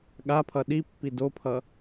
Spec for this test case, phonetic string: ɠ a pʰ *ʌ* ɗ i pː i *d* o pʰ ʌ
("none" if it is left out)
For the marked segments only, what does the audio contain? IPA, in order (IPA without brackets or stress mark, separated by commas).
ʌ, d